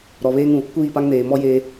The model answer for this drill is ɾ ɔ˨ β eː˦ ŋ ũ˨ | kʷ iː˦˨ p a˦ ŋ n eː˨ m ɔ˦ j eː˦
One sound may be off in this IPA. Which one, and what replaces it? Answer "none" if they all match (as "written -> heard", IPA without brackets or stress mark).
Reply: none